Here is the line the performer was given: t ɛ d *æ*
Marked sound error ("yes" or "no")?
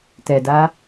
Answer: yes